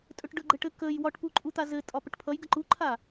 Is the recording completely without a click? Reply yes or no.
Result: no